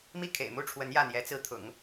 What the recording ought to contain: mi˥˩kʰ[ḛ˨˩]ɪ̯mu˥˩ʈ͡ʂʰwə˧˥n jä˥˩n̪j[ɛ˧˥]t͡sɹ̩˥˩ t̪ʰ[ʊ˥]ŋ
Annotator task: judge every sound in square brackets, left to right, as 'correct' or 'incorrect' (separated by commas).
correct, correct, incorrect